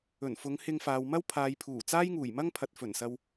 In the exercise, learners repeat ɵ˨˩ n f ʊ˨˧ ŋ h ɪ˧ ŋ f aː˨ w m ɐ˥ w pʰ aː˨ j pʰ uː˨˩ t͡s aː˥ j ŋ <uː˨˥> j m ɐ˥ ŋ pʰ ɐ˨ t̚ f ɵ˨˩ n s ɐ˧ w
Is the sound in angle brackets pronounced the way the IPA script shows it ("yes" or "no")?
no